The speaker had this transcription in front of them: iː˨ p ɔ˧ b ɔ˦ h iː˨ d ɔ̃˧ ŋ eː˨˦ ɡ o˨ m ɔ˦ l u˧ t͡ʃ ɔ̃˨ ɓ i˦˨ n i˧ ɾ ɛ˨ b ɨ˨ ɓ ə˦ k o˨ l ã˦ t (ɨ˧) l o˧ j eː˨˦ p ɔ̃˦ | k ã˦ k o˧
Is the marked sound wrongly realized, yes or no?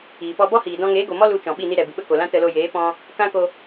yes